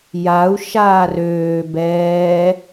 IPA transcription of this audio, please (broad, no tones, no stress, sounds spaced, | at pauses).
j a u̯ ʃ aː r øː b ɛː